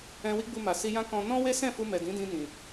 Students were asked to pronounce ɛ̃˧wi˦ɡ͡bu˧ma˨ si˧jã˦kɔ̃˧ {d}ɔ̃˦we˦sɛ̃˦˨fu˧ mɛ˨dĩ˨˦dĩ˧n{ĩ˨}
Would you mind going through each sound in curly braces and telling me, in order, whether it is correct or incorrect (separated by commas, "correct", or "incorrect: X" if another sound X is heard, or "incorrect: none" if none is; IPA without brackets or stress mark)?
incorrect: n, correct